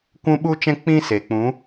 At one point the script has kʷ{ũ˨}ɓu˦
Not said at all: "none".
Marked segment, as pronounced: ũ˦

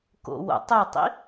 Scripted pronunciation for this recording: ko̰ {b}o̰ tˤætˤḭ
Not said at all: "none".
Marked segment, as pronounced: w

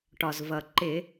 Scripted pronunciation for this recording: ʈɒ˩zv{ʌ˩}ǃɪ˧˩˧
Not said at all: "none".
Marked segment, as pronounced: ʌ˩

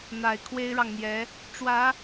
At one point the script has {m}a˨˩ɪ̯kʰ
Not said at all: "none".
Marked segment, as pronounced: n̪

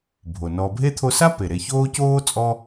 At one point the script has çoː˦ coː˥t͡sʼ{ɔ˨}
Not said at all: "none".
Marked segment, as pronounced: ɔ˦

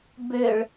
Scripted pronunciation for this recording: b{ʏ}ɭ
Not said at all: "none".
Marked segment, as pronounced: ʏ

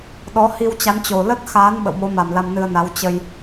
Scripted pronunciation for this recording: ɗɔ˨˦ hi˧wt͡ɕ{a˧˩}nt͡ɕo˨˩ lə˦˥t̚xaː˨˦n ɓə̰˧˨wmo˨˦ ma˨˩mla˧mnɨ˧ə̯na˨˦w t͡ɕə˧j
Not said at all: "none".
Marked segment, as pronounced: a˨˦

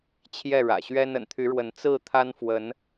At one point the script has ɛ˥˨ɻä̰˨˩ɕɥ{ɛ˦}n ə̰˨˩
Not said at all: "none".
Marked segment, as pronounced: ɛ˦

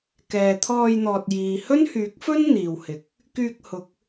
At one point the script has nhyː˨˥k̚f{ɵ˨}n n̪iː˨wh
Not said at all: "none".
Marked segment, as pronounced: ɵ˥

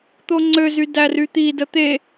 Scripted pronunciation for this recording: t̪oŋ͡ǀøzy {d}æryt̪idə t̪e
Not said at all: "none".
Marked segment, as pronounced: d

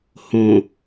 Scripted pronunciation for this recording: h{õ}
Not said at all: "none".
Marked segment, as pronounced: õ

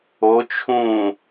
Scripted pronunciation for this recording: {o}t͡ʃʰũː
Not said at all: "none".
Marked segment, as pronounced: o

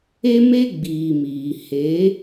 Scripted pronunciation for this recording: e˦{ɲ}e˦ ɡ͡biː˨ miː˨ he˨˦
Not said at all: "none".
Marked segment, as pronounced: m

